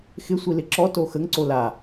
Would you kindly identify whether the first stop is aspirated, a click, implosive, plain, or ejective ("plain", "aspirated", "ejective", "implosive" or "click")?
click